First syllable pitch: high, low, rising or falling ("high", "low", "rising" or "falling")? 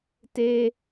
high